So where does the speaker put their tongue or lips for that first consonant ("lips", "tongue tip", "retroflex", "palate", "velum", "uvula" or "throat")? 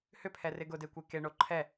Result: throat